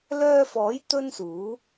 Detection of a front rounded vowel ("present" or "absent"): present